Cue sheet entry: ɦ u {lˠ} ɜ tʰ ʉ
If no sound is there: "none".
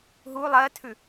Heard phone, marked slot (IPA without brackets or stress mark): lˠ